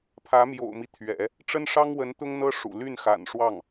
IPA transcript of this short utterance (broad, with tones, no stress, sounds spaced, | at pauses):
pʰ ä˧˥ m j o̰˨˩ ʊ̯ m i˦ t̪ʰ ɥ ɛ̰˨˩˦ | ʈ͡ʂ ə˥ n ʂ ɑ˥ ŋ w ə˧˥ n t̪ ʊ˥ ŋ n̪ ɤ˥ ʂ ṵ˨˩ l y˥˩ n x a̰˨˩ n ʂ w ɑ˥˩ ŋ